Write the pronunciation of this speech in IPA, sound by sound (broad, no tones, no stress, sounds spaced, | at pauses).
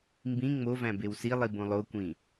m b ĩ ŋ͡m o v æ̃ b e w s i lˠ i b õ lˠ o kʷ ĩ